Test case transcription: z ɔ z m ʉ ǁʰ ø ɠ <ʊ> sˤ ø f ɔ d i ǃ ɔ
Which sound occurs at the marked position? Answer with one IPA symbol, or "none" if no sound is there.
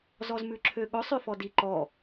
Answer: ʊ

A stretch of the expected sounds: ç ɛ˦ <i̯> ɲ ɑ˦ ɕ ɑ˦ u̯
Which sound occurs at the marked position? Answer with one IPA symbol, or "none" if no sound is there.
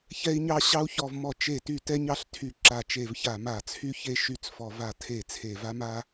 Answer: i̯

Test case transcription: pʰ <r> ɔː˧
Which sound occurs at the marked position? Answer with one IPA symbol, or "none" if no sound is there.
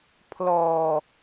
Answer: l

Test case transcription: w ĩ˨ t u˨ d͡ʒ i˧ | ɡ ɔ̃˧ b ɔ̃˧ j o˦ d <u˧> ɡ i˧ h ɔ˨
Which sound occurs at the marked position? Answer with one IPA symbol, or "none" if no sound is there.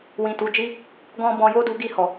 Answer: u˧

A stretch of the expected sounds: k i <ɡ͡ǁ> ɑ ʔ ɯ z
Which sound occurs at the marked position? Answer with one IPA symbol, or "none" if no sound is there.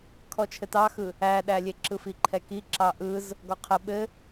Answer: ǁ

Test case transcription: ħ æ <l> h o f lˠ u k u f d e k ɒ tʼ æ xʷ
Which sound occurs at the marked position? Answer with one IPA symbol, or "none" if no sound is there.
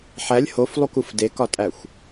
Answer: lʲ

